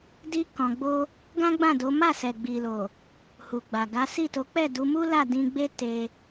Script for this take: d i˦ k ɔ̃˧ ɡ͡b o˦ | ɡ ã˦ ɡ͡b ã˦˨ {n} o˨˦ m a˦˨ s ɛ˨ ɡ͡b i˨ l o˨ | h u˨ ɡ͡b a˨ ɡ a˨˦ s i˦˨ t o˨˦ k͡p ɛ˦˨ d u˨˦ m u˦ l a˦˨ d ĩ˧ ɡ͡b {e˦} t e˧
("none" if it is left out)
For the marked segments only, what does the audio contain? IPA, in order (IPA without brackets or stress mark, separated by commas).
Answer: d, e˦